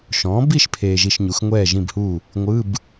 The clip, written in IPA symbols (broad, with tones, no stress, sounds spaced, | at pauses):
ʃ ɔ̃ː˩˥ b i˥˨ ʃ pʰ eː˨ ʒ i˨ ʃ ɲ u˩˥ x ŋʷ ɛː˥˨ ʒ ĩ˥˨ b h u˥˨ | ŋʷ ɯ˧˥˧ b